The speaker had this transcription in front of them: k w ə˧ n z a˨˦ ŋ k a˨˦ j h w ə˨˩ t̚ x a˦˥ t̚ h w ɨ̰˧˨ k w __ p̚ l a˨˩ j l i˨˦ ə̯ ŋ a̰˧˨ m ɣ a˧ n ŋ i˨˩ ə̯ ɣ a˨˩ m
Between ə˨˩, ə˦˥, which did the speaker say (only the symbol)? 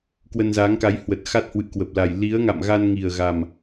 ə˨˩